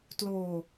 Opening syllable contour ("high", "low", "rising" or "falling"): low